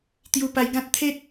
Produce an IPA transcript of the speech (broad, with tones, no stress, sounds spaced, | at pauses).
t̪ j u˧ p a˧ j ɡ ã˦ t̚ t̪ʰ e˦ t̚